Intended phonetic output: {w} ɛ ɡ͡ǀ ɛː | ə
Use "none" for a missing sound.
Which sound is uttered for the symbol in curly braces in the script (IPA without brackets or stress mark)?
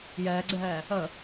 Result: j